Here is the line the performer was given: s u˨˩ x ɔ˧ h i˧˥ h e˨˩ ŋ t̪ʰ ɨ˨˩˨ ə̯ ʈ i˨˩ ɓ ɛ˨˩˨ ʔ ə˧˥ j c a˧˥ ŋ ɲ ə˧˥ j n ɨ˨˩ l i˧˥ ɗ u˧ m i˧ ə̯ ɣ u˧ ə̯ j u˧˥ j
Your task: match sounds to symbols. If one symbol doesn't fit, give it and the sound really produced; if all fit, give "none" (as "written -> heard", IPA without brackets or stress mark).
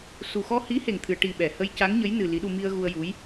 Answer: ʔ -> h